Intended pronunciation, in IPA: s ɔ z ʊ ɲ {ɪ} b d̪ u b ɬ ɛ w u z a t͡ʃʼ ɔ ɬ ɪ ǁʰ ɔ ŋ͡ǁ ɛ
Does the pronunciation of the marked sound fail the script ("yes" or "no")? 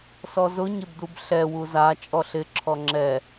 no